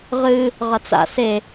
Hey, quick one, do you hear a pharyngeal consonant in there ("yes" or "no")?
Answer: no